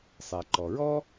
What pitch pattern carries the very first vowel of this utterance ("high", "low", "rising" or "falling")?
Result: low